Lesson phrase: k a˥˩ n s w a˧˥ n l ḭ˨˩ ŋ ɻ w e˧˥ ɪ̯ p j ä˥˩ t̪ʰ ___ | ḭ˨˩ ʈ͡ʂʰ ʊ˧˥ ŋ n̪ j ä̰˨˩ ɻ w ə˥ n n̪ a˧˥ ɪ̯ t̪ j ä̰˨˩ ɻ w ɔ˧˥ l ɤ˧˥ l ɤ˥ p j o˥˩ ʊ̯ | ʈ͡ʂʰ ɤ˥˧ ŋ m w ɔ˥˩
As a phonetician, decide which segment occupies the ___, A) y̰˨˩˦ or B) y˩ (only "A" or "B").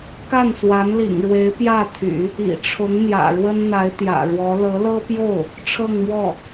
A